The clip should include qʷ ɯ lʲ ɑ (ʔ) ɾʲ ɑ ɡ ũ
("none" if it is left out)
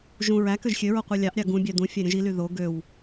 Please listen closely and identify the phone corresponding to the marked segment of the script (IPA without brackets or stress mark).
ʔ